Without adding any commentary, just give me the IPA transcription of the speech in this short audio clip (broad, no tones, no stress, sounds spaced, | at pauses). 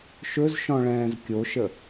ʃ ɵ z ʃ ɔ̃ ɭ ɛ̃ː z kʲ o ʃ ə